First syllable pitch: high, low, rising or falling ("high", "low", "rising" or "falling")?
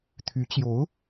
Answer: rising